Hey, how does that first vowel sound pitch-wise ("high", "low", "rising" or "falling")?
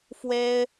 high